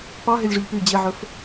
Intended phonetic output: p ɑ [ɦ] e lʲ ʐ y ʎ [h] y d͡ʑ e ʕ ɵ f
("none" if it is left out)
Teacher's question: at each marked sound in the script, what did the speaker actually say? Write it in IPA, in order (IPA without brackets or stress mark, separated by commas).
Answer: ɦ, p